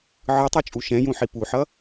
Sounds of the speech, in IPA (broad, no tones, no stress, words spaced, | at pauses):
ʕɯtˤot͡ʃʼu ʃɛ̃jũħi puħʌ